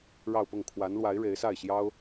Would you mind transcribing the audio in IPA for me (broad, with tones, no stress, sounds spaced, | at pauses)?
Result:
ɻ ɑ˥˧ ʊ̯ p ʊ˥˩ ŋ kʰ w a˧˥ n l w a˧˥ ɪ̯ ɻ e˧˥ ɪ̯ s a˥˩ ɪ̯ ɕ j ɑ˥ ʊ̯